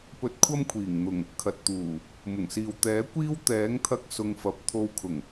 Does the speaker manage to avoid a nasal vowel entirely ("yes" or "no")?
yes